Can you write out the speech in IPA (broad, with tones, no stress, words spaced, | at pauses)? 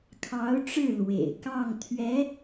kʰɑ˧˥ʊ̯ʈ͡ʂɻ̩˥˩ lwḛ˨˩ɪ̯ kɑ˥˩ŋ t̪ʰɥɛ˧˥